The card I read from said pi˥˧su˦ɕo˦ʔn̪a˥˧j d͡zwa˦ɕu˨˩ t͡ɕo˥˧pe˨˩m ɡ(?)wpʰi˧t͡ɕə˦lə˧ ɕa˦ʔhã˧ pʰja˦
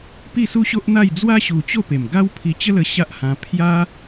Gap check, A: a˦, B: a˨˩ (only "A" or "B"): A